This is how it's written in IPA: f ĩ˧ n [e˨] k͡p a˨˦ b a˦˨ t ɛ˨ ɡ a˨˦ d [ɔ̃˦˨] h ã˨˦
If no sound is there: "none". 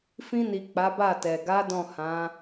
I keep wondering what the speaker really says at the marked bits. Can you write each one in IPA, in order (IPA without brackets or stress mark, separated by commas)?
i˨, ɔ̃˦˨